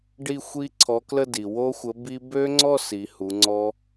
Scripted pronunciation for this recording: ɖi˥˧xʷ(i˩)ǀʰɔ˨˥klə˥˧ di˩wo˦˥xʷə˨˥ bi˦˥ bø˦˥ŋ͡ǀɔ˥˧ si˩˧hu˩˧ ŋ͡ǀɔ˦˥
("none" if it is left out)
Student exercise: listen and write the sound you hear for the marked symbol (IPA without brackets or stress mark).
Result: i˦˥